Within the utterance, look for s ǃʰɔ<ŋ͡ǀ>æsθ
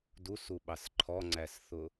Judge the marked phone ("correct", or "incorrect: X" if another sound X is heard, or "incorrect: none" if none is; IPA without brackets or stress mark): correct